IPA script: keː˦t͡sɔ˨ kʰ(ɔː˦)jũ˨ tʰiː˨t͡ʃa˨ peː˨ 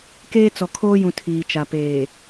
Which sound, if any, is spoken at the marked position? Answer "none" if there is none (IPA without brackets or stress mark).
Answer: oː˦